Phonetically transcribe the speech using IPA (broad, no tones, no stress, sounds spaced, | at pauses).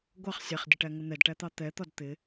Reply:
ɡʷ ɑ χ sʲ æ χ dʲ ə ʈ æ ŋ ə n̪ ɛ d ʈ æ t̪ ɑ t̪ ɛ t̪ ɒ d t̪ ɪ